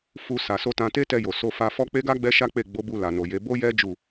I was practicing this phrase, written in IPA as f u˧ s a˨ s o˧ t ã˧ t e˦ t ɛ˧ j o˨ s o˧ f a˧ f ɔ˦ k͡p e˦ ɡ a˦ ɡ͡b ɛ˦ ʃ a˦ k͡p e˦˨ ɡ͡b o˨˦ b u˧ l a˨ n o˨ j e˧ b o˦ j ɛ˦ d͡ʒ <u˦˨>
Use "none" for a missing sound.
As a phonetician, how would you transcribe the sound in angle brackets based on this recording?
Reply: u˦˨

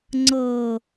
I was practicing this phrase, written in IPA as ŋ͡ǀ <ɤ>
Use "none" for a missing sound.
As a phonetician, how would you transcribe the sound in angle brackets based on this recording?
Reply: ɤ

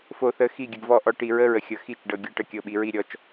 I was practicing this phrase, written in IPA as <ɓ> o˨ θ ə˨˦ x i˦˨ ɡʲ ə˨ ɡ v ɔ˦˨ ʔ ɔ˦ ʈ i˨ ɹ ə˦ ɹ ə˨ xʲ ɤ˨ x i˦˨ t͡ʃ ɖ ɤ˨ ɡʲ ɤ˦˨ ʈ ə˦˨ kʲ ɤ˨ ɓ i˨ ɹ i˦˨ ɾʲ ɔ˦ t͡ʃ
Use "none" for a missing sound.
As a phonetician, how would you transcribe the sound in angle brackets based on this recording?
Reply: f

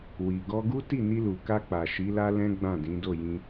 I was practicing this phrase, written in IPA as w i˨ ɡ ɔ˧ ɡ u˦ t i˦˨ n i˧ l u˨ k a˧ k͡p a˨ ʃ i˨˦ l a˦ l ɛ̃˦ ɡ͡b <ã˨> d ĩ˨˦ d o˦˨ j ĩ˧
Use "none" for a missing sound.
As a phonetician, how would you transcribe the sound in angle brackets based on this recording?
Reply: ã˦˨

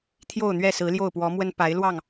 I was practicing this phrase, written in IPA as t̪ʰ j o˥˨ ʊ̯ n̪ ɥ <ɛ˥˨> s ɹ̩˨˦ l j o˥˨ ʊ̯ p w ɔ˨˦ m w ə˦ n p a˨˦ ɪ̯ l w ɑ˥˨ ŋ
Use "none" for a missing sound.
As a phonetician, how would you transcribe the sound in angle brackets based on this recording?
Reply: ɛ˥˨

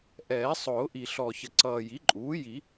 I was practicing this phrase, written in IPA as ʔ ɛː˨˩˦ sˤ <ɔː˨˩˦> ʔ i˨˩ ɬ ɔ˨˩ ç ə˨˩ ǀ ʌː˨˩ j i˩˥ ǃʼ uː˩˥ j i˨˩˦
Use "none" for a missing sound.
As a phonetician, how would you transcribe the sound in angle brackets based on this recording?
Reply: ʊː˨˩˦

